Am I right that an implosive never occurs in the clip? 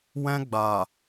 yes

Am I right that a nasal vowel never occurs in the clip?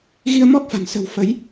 yes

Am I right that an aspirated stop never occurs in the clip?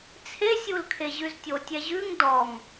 no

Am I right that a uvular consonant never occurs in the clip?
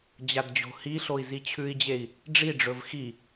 yes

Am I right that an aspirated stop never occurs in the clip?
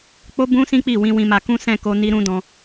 yes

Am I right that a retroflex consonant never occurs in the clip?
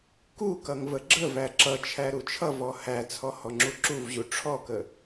no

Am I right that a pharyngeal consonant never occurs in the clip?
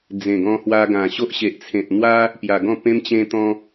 yes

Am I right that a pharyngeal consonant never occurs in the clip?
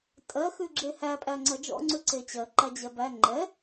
yes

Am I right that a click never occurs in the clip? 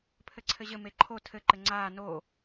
no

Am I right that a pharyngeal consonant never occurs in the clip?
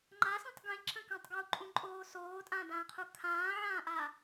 no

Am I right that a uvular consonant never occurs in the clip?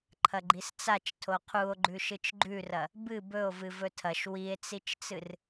no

